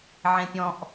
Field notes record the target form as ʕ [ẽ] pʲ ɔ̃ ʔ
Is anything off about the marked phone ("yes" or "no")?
no